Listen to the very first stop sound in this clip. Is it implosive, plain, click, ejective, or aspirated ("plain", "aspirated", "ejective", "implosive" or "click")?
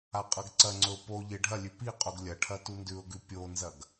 ejective